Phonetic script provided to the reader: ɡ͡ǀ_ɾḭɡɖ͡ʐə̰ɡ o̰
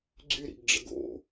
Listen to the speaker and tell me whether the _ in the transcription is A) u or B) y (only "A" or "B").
B